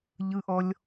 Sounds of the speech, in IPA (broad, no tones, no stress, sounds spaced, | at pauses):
ʎ ɯ ʔ ɔ lʲ